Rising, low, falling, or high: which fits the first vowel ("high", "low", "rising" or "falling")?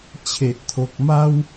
low